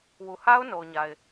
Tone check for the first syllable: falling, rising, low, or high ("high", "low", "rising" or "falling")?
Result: low